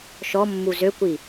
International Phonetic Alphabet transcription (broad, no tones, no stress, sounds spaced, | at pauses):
ʃ ɔ mː u z ø kʷ i